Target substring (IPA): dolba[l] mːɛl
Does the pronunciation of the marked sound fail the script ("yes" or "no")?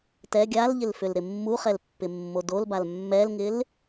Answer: no